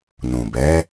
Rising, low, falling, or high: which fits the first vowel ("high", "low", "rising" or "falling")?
low